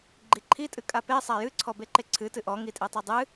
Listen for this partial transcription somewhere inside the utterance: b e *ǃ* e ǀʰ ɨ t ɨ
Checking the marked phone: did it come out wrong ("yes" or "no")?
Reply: no